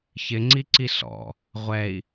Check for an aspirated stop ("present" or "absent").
absent